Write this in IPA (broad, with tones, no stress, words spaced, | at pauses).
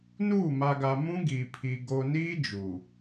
nuː˦˨ ma˨ɡa˨mũ˦ ɡi˨pʰi˨ ɡo˨niː˦ d͡ʒuː˨